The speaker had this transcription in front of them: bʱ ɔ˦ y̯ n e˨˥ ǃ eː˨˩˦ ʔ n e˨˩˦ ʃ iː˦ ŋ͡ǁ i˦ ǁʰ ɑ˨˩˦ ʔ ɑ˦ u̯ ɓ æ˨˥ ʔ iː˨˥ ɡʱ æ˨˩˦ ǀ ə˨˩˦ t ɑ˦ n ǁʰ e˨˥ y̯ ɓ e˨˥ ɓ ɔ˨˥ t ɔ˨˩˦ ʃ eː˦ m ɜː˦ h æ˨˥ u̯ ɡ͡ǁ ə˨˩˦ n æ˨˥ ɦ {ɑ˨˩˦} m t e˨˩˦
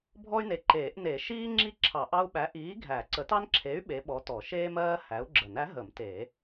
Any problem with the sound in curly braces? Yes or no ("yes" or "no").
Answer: yes